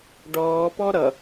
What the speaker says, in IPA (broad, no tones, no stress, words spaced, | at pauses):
ɖɔːpɔ ɾʌ